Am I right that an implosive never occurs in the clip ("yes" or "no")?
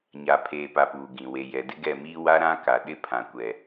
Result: no